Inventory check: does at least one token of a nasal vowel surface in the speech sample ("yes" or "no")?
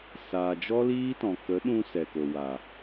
yes